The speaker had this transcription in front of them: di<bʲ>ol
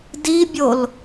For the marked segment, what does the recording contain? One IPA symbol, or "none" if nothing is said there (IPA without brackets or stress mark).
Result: bʲ